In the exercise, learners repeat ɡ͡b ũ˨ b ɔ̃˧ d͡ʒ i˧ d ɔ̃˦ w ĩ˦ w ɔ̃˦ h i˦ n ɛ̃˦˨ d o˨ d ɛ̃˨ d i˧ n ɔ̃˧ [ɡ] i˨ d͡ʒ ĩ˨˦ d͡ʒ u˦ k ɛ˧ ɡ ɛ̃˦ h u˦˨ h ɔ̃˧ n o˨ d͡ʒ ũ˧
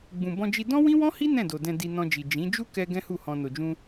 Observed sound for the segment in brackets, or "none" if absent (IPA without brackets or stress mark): d͡ʒ